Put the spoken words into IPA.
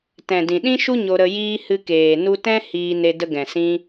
t ɛ̃˨ d ĩ˨ ɗ ĩ˦ ʃ u˦ ɲ o˧ ɾ ə˧ j iː˦ h ɨ˧ k eː˨ n u˧ t ɛ̃˦ h iː˧ n e˧ d ə˧ ɡ ɛ̃˨ s ĩ˧

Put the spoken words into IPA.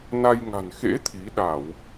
n a˧ j ŋ a̤˨˩ n x ḛ˧˥ t̪ʰ i˨˦ ɗ a˧˩˨ w

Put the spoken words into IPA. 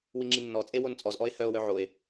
w i ŋ͡ǁ i nː ɔ t͡sʼ e w o n t͡sʼ ɔ z ʔ ɔ e̯ h œ o̯ w œ ʕ o e̯

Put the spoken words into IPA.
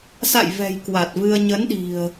s a̰˧˨ j v ɛ̤˨˩ j k w a˨˩ t̚ v ɨ˧ ə̯ ɲ ə˨˦ n ɗ i̤˨˩ ə̯

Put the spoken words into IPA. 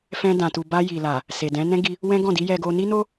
f ɛ̃˧ d ã˨ t u˨ b a˧ j i˨ l a˨ | s e˨ d ɛ̃˨˦ n ɛ̃˦ ɡ i˧ | w ɛ̃˦ ɡ ɔ̃˦˨ d i˨˦ j ɛ˧ ɡ o˧ n i˦ n o˦

